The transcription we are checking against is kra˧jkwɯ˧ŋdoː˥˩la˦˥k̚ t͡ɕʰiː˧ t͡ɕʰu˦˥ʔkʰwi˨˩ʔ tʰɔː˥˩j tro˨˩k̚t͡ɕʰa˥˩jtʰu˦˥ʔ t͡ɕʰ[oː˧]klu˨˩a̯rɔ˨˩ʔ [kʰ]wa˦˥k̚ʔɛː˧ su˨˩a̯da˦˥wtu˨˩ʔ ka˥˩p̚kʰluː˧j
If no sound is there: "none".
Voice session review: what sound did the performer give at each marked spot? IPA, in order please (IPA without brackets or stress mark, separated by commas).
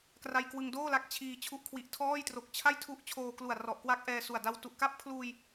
oː˧, k